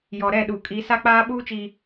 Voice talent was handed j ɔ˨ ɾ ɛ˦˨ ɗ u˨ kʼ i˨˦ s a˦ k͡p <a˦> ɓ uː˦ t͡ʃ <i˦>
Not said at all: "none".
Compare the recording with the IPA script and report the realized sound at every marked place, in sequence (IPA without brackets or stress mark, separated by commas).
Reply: aː˦, i˨